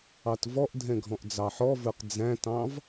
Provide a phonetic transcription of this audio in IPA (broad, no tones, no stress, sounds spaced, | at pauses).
ɑ t v ɔ ʔ dʱ ɛ̃ ɡʱ ɔ̃ ʔ d͡z ɑ ħ ɔ v ə˞ q d͡z æ̃ t ɑ̃ v